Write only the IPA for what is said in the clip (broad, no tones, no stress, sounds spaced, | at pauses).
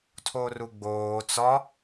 tʰ o r u ɡ͡b oː t͡s ɒ